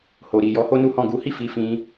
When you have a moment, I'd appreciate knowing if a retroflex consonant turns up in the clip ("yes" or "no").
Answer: no